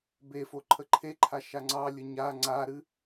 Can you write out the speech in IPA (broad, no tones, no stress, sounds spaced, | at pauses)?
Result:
b e f o ǃʰ ə ǃʰ e ǃʰ a ʃ a ŋ͡ǀ ɑ lʲ ə ɲ a ŋ͡ǀ a ɾ ɨ